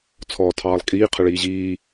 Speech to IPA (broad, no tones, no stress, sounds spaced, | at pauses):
t͡sʰ ɔː tʰ ɑː lˠ kʼ iː qʰ ə ɭ iː ʑ iː